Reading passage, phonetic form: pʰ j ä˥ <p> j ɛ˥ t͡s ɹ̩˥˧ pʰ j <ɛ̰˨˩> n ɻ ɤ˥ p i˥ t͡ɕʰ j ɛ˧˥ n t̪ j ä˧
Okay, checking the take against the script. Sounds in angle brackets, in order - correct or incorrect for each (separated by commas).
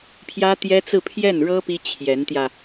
incorrect, incorrect